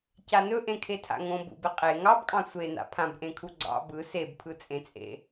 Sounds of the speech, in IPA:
c a n ɵ ʔ ẽ kʰ e tʰ a̰ ŋ õ b ṵ b ɪ qʼ e ŋ ɑ b kʼ ɑ̃ sʷ e n a̰ pʰ ã b ʔ ẽ kʰ u ɡ͡ǀ ɑ̰ b ɯ s e b pʰ ɯ t͡sʼ ẽ t͡sʼ ḛ

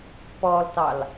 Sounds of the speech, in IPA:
p ɔ l t ɑ l

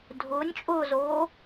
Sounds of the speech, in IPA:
dʱ ʊː nʲ t͡ʃʼ ʊː z oː

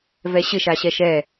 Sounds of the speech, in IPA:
v ɛ ɕ ɪ ʃ a ɕ ɛ ʃ ɛ

